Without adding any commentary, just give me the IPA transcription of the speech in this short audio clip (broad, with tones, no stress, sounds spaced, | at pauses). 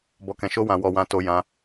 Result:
b ɔ˨ k ɛ̃˨ ʃ o˧ w ã˨ w ɔ˨ w ã˧ t o˧ j ã˧